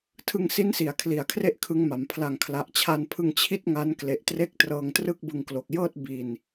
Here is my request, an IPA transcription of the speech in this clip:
tʰɯ˧ŋsi˦˥nsi˩˦a̯ kʰli˨˩a̯kʰre˥˩ʔkʰɯ˦˥ŋma˩˦m pʰla˨˩ŋkʰla˨˩ʔt͡ɕʰa˧npʰɯ˧ŋ t͡ɕʰi˥˩t̚ŋa˦˥n kle˨˩ʔtre˦˥k̚ trɤː˧ŋtrɯ˥˩k̚bɯ˧ŋklo˨˩k̚ jɤː˥˩t̚ bi˧n

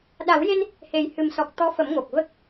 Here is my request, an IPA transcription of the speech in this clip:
ɗa˨˩˦wje˧n | he˨˩jhɨ˨˩msɔ˨˩k̚ t̪ɔ˧˥fə˨˩˦m ŋo˨˩k̚və˦˥k̚

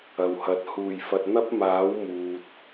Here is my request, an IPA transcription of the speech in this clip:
ɐ˨whɐ˨˥t̚ huː˨˩jfɐ˨t̚ n̪ɐ˥p̚maː˨˥w muː˨t̚

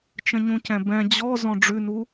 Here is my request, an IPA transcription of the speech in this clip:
t͡ʃə̃ɲũcɛ̃bɛ̃ d͡ʑɔ zɔ̃ɖ͡ʐʉnu

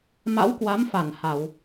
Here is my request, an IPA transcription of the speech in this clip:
ma̰˧˥wkwa˨˦mfa˧˩n ha˧˩˨w

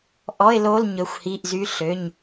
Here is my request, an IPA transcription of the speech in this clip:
ʔɔ˧˥˧ɪ̯lo˧˥˧l ɲɵ˩˧˩xʷhi˩˧˩ʔzy˨˦ ɬø˩˧˩ɲ

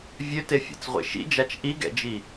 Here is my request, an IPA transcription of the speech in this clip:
vʲøtefʲa̰t͡sʁʷḛ ʃḭd͡ʒat͡ʃ ʔiɡɛ̰d͡ʒi

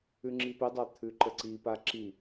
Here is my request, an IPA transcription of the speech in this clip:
ʉŋ͡ǁipɪdˤa t̪ʰʉǃəǀipa ǁi

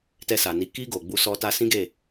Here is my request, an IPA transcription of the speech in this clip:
tɛ˧sa˨ni˨˦ ki˧ ɡo˨ɡ͡bu˧ sɔ˧ ta˧sĩ˦ɡe˦˨

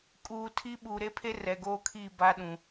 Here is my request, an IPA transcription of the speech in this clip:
kʼuː˨ tʰi˦ ɓuː˨ɾe˦pʰe˦ rɛ˨ɡoː˦kʰiː˦˨ ba˦ɗũ˨

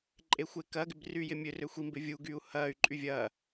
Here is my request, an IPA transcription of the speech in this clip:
ǃʼexʷekɐːɡɪb ryːjɪmʲørø xʷimbɪ vʲu ɡyːu̯hɐːy̯ǃʼy vʲɐː

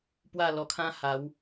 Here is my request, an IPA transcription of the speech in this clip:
pwa˥˧lɔ˧kʰã˦ ha˨˦w

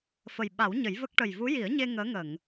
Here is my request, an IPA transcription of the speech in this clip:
fə˨˩j ɓa˨˩˦w ɲə˨˩˦jvə˦˥k̚ ʈə˨˩jvu˧˥ji˨˩˦ə̯ɲe˧ ŋəː˧˥ ŋə˨˩˨ŋ

